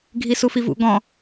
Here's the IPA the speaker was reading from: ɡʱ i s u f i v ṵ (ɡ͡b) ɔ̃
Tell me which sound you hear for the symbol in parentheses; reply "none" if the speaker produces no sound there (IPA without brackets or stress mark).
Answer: ɡ